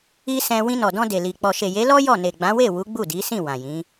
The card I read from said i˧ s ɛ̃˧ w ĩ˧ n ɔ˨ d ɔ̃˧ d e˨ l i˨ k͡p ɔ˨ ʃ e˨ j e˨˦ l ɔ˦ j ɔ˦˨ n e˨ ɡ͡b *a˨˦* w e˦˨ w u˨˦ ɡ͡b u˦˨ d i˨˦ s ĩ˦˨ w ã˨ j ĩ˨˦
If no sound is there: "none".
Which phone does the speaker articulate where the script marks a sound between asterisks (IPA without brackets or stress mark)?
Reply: ã˨˦